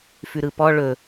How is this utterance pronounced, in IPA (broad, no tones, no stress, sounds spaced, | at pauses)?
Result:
f ʉ ɾ ɯ p ɔ ɭ ɵ